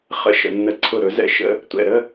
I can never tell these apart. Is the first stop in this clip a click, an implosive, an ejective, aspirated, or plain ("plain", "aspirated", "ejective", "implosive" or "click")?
click